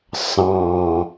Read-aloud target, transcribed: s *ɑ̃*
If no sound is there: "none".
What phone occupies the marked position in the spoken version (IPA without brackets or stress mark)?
ɑ̃